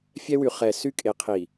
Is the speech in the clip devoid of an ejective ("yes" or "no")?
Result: no